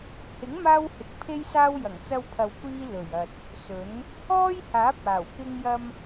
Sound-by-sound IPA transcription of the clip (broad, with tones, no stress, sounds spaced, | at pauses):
h ɪ˨˥ ŋ m aː˧ w h ɪ˨˥ k̚ pʰ e˥ j s aː˥ w j ɐ˨˩ ŋ t͡s ɐ˧ w pʰ ɐ˨ w kʷ iː˧ l ɵ˨˩ ɥ ɐ˨ t̚ | s ɵ˨˥ n | ɔː˥ j h aː˨˥ p̚ aː˨˩ w k ɪ˧ ŋ j ɐ˧ m